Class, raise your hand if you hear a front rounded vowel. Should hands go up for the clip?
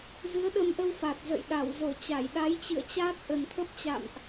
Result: no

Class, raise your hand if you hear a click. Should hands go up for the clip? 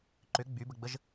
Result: yes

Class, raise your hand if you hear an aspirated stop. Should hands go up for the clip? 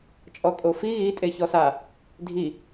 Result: no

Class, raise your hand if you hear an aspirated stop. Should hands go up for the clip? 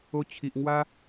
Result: yes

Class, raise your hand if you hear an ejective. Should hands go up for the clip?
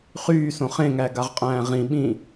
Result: yes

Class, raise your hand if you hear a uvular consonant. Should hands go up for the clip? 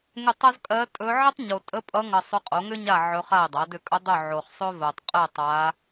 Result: yes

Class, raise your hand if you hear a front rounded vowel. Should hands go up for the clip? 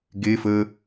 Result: no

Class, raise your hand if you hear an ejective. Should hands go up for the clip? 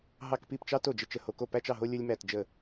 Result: no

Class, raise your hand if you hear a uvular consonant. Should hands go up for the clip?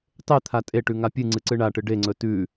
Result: no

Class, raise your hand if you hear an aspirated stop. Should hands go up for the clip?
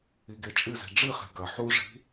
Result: no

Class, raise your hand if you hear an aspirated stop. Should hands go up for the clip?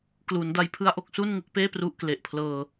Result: yes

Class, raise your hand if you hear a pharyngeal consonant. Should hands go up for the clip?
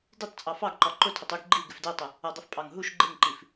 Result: no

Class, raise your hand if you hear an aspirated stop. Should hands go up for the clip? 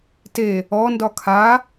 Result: yes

